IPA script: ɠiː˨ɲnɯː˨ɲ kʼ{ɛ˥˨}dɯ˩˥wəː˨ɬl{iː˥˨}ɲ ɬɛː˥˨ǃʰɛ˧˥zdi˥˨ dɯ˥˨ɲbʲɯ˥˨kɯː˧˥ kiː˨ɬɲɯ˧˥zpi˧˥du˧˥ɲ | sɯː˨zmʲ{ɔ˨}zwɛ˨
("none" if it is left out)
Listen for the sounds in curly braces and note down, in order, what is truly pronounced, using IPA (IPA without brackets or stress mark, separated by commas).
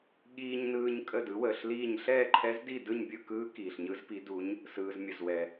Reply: ə˥˨, iː˥˨, ə˨